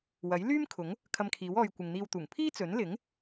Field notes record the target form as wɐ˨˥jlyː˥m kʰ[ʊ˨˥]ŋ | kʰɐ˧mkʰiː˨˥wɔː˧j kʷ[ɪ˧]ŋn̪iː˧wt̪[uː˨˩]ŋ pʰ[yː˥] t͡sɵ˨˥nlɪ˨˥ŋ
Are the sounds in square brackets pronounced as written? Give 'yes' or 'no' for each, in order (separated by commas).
yes, no, yes, no